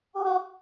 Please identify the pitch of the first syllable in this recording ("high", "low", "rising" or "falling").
high